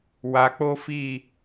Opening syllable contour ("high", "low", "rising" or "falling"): low